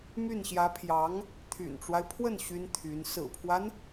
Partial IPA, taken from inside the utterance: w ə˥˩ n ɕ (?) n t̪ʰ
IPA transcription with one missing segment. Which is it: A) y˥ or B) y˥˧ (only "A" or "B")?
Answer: A